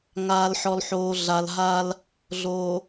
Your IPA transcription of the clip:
ŋ aː˨ l ħ ɔ˨ l ħ oː˨ ɮ a˨ l ɦ a˦ l | ɮ o˨

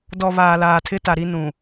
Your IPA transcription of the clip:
d ɔ˨ β aː˨ l aː˨ tʰ ɪ˦ t a˨ ɾ i˦ n ũ˨

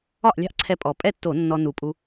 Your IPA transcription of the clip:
ɒ˥˩ ʔ lʲ ɑ̤˥˩ ʔ ǀʰ ɛ˧ pʼ ɔ˨˩ pʼ ɛ˥˩ tː o˧˩˧ nː ɔ˧ n u˨˩ pʼ u˧

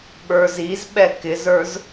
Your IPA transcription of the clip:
ɓ ə˞ z i z ɓ ɛ k ɪ z ə˞ z

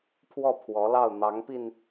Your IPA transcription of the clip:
pʰ w ɔ˥˩ pʰ w ɔ˧˥ l ɑ˥˩ ʊ̯ n̪ ɑ˧˥ ŋ p i˧ n

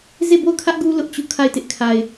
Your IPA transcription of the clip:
z e˦˨ b o˦˨ ʊ̯ kʰ ä˦ ʔ ɡ u˦ l ʊ˦ ʔ t͡ɕ u˦˨ kʰ a˦˨ ɪ̯ t ɪ˦ ʔ kʰ a˨ ɪ̯

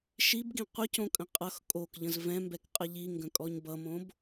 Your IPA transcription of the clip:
ʃ i b ɡ ĩ qʷ ə c õ kʼ ə̃ qʼ ʌ x kʼ o k ʎ ə̃ z v ɛ̃ m b ɛ k qʼ ʌ ʎ i ŋ ɡ ə̃ kʼ ɔ ɲ b ʌ m õ b

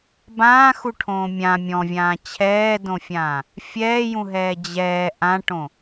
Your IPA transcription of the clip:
b ãː x u ʈʰ õː mʲ ã mʲ ɔ̃ vʲ ãː t͡ɕʰ ɛː d õ fʲ ãː | fʲ ɛː j ũ ɦ ɛː d͡ʑ ɛː ʔ ã ʈ õ

